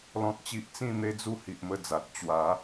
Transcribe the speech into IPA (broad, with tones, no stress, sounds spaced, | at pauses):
l ɔ̃˦ t̚ t͡ɕ i˦ ʔ t͡s ĩ˥˧ n̪ e˦ d͡z u˦ h i˨ ʔ m ə˧ d͡z a˨ t̚ t͡ɕ w a˨˦